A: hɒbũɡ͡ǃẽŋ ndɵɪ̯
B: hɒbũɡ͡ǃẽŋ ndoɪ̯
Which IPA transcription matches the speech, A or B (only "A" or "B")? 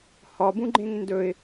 A